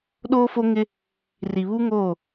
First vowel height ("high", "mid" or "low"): mid